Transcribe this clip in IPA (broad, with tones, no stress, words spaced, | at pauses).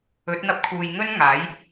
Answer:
ɵ˨˥t̚n̪ɐ˧p̚kʰuː˨j ŋɵ˥nŋaː˨˥j